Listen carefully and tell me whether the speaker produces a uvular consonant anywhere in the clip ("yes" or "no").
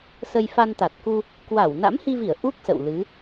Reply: no